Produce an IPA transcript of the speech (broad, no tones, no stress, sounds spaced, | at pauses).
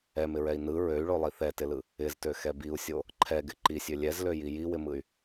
ɛ m ɪ ɹ ɛ i̯ n ɯ ɹ ø y̯ ɭ o lˠ i θ ɛ t ɪ l ɯ | ɪ z t ø x ɛ b i u̯ sʲ o | ǃʰ ɛ ɡ ɪ ǃ i sʲ ø lʲ ɛ z l ø j i j i w ɪ m ɯ y̯